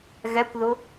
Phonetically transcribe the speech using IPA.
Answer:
ɣ ɛ kʷ ð ʊ

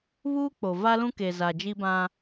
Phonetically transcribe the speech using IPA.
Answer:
β uː˦ k͡p o˨ v a˦ l ũ˦ k e˨ z a˨ d͡ʒ i˦ b ã˦

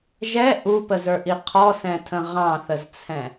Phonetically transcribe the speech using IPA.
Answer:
ʒ ɛ ʔ u p ə z ə˞ ʔ i qʰ ɔ s ɛ̃ tʰ ə̃ ʁ ɑ̃ θ ə z t͡sʰ ɛ̃

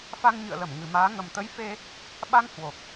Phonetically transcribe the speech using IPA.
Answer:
f a˧ ŋ ɲ ɨ̰˧˨ ə̯ l ə˧˩ m ŋ ɨ˨˩ m aː˨˦ ŋ ə˨˩ m t̪ ə˨˦ j f e˧ | ɓ a˧ ŋ h w o˨˩ k̚

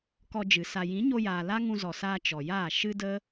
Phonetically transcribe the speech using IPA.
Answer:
k ɔ˧ d͡ʒ ɨ˨ s a˨ j ĩ˨˦ ɲ o˧ j aː˨ l a˦ ŋ ũ˧ z ɔ˨ s aː˧ t͡ʃ ɔ˨ j aː˦˨ ʃ ɨ˦ d ə˦

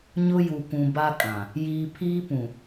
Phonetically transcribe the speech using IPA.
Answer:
ɲ ʊ˦ j u˨ k ũ˨ b a˦ kʼ ã˨ | j iː˨ pʰ iː˦ p ũ˨

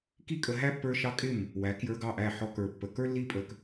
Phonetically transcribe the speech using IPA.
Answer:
k i˦ kʼ ə˧ ɦ æ˦ pː ə˞˧ ʃ ɑ˦ kʼ ɪ˦˨ m | w æ˨˦ k j ə˞˧ ɡ ɑ˦˨ ʔ æ˦˨ ħ ɔ˧ k ə˞˨ pː ə˨ k ə˞˦ lː i˦ pʼ ə˧ k

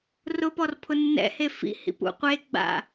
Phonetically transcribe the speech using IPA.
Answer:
r ʊ p ɔ r pʰ ʊ nː ɛ̰ h e f ḭ h ḭ p ṵ qʷ e ɡ͡b a̰

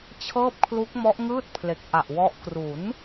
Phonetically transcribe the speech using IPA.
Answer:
t͡ɕʰ ɤː˥˩ p̚ kʰ l u˦˥ k̚ m ɔ˦˥ ʔ ŋ ɯː˥˩ t̚ pʰ l e˨˩ k̚ ʔ a˨˩ ʔ w ɔ˦˥ ʔ k r u˩˦ n

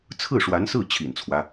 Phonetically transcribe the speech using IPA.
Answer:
t͡sʰ ɹ̩˥˩ ʂ w a˧˥ n s ɹ̩˥˩ t͡ɕʰ ḭ˨˩ n t͡sʰ w ä˦

